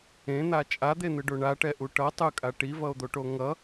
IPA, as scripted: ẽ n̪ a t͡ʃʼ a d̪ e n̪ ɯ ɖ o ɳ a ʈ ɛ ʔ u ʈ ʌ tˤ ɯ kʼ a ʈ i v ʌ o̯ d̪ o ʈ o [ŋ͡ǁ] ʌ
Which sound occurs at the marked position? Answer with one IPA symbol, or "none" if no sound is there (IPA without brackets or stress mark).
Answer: ŋ